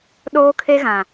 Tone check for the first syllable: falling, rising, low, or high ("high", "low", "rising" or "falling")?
high